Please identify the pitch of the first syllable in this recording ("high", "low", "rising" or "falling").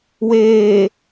low